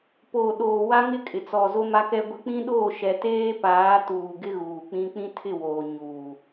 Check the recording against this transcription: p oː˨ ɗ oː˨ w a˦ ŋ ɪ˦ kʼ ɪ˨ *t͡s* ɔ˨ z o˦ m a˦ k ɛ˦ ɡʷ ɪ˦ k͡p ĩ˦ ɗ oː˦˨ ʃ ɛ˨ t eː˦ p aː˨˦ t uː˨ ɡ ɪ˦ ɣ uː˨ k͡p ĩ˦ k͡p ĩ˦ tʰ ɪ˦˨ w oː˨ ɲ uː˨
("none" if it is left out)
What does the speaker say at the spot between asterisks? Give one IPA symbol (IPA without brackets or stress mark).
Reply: t͡s